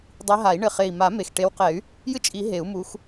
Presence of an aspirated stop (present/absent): absent